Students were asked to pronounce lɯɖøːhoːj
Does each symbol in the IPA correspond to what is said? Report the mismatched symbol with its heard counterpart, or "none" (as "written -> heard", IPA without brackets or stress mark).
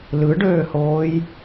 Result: none